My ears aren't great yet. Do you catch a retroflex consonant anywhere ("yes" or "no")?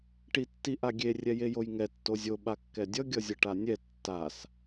yes